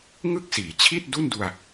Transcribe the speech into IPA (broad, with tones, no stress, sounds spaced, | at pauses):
ŋ ɯ˥˩ k̚ s iː˩˦ t͡ɕʰ i˥˩ t̚ d u˥˩ n d u˧ a̯